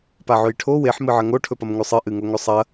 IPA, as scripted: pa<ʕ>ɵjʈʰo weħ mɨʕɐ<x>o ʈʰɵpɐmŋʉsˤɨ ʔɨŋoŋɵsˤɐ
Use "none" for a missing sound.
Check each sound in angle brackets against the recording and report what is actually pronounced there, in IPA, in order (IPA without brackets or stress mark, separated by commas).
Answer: ʕ, ŋ